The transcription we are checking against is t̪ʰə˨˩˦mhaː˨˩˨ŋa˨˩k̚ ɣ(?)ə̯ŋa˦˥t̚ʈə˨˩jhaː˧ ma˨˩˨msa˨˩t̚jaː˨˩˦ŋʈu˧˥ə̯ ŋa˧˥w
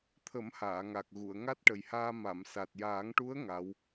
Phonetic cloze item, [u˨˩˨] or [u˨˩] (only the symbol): u˨˩˨